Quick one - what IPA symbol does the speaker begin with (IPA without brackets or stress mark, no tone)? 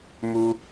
m